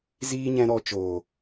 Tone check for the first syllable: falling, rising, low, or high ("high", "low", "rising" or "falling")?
low